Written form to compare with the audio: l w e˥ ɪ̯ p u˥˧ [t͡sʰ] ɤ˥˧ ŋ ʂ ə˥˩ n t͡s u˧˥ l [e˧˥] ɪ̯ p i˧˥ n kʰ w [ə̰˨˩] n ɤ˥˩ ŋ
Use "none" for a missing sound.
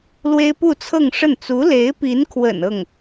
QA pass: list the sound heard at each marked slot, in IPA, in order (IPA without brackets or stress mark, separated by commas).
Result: t͡sʰ, e˧˥, ə̰˨˩